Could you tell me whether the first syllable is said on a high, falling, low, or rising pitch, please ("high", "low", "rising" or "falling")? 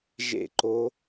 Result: falling